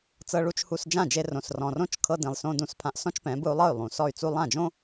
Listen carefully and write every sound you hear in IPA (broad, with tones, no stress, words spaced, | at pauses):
t͡sɤ˧ɭu˧t͡ʃhu˧s d͡ʒã˦˨d͡ʒe˧rõ˨s rɔ̃˨rõ˦t͡ʃ kʰɤ˧dĩ˨lˠsõ˧ dũ˧spʰã˧ʔsɔ̃˦t͡ʃpɛ̃˨˦ bɯ˧u̯lˠɤ˦˨y̯ lˠũ˨sɔ˦˨y̯t͡su˦ lˠã˦˨d͡ʒõ˦